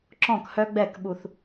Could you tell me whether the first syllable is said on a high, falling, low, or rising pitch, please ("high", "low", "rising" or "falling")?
falling